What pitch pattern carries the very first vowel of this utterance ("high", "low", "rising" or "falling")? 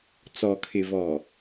low